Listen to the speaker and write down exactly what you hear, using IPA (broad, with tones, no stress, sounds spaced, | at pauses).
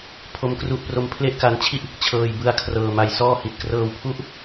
pʰ o˦˥ m k r u˦˥ ʔ p r o˦˥ m pʰ l e˥˩ ʔ k a˦˥ n t͡ɕʰ i˥˩ ʔ | t͡ɕʰ ɤː˧ j b ɯ˦˥ a̯ kʰ r ɤː˧ m a˦˥ j s ɔː˥˩ h i˨˩ t̚ k r ɤː˧ w pʰ u˦˥ ʔ